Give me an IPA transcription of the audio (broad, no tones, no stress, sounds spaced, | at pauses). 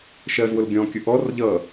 ʃ ɜ z w ʊ l ɡʲ ɔ̃ kʲ ʊ ʔ ɔ r ʎ ʌ